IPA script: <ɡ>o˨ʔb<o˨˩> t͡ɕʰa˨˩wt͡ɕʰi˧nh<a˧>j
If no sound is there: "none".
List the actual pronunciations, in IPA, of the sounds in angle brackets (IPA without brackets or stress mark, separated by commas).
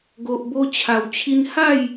ɡ, o˧, a˥˧